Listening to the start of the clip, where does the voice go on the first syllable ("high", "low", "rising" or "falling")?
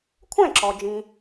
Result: falling